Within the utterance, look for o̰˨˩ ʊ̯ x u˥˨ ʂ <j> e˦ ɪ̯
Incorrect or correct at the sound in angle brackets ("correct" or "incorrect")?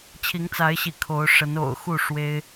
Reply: incorrect